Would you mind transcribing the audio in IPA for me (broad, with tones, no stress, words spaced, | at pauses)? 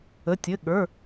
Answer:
ə˩˧˩tʲɘ˩˧˩ ɠə˞˩˧˩